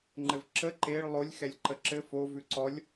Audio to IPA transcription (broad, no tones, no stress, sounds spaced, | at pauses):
ŋ͡ǃ ɘ v ǁ ə ǃ e ɭ lˠ o lʲ x ɛ lʲ ǃ ə ǁ ɘ f o v ʉ ǀ ɔ lʲ